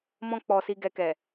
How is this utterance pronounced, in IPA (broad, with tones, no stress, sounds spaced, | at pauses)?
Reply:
m ɔ̃˧ k͡p ɔ˨ s i˨ ɡ ɛ˨ k ɛ˨